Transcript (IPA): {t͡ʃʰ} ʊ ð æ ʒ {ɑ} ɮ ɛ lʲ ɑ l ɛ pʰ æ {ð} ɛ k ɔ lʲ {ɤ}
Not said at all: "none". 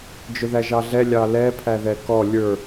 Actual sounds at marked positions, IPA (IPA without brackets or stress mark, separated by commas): d͡ʒ, ɑ, ð, ə˞